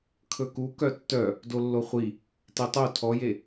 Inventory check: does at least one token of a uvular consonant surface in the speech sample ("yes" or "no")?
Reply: yes